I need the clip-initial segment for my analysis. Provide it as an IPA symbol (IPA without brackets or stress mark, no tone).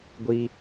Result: ɡʷ